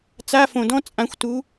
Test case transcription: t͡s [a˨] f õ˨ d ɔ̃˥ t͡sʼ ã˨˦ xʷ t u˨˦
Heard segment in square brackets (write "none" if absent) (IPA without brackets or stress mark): a˧˥˧